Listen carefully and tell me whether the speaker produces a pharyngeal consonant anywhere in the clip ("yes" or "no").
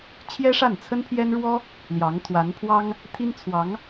no